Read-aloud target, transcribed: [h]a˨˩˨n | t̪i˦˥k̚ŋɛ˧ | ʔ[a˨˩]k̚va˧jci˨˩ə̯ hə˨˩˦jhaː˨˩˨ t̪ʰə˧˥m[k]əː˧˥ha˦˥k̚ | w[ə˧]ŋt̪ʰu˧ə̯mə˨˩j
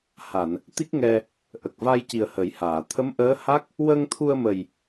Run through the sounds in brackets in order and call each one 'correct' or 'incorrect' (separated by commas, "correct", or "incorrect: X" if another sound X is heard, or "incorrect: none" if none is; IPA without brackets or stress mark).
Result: correct, incorrect: ə˨˩, incorrect: ʔ, correct